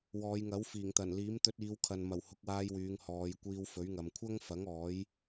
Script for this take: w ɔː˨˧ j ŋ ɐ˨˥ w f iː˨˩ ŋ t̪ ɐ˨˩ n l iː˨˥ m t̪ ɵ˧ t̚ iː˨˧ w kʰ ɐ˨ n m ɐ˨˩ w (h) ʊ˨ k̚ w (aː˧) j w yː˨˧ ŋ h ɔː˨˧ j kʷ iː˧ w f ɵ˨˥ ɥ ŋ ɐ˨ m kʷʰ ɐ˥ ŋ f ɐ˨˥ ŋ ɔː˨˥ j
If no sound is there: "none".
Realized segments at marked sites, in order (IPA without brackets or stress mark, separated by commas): h, aː˧